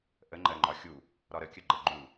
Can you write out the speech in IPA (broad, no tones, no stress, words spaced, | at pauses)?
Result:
ʔəŋ͡ǃɜŋ͡ǃɒ xʲu | ɾɒɾəkʲə ɡ͡ǃəɡ͡ǃu